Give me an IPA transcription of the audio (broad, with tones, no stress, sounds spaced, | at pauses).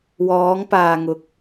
w ɔː˨˧ ŋ p aː˨ ŋ ʊ˨ k̚